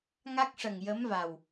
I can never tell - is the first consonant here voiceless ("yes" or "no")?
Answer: no